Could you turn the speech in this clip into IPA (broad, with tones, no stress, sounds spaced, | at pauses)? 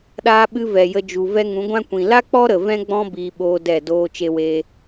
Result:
ɗ aː˧ ɓ ɨ˧ v ɛ˨ j ə˧ d͡ʒ u˨ v ɛ˦ ŋ ũ˨˦ ɡʷ ã˦ kʷ ĩ˨ l a˦ k͡p ɔ˦ ɾ ə˨ v ɛ̃˦ ɡ͡b ɔ̃˦ b iː˧ ɓ oː˦ d ɛ˦˨ d oː˦ t͡ʃ e˦ w eː˦